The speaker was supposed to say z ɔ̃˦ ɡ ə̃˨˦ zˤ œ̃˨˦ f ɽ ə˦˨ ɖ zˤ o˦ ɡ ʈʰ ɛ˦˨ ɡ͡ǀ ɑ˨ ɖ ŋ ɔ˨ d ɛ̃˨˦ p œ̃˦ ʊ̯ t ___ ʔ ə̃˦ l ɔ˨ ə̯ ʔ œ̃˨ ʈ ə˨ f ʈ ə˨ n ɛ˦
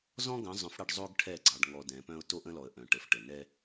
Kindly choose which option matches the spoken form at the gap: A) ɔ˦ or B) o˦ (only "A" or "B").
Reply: B